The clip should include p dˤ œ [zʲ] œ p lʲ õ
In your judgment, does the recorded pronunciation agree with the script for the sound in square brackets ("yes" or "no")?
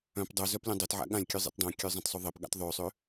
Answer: no